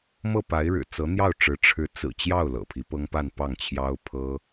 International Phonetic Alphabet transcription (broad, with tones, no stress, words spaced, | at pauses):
mɤ˥˩pa˧˥ɪ̯ɻɻ̩˨˩ t͡sɤ˧˥n̪jɑ˥˩ʊ̯ʈ͡ʂɻ̩˧˥ ʈ͡ʂʰɻ̩˧˥t͡sɹ̩˨˩ t͡ɕjɑ˥˩ʊ̯ lɤ̰˨˩pʰi˧˥pɤ˥ŋ pa˥˧npɑ˥˩ŋt͡ɕʰjɑ˥ʊ̯pʰɤ˥